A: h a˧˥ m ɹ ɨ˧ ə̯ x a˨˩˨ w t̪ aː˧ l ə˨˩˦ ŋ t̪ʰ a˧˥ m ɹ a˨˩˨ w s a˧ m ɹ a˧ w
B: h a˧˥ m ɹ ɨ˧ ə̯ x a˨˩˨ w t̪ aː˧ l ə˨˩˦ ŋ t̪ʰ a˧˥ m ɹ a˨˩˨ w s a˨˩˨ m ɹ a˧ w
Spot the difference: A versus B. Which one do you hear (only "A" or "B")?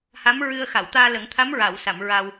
B